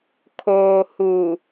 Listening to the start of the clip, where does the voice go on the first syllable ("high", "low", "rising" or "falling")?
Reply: low